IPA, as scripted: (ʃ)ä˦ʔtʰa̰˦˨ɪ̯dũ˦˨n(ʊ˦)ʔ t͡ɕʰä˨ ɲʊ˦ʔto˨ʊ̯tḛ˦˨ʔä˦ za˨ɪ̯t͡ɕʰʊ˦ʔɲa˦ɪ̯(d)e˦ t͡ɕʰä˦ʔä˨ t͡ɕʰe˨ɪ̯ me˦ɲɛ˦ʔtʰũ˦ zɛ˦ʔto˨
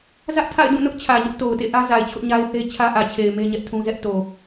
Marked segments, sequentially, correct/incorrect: incorrect: z, correct, incorrect: θ

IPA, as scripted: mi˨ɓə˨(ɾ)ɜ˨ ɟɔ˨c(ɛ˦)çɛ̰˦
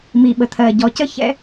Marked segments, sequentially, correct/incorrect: incorrect: t̪ʰ, incorrect: ə˦

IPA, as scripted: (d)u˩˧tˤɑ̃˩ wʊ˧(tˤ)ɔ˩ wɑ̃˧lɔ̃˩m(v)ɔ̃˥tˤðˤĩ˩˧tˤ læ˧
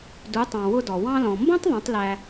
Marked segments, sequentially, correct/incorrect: correct, incorrect: d, incorrect: b

